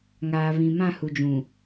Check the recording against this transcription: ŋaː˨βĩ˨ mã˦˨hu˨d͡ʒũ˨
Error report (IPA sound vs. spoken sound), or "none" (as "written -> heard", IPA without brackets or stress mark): none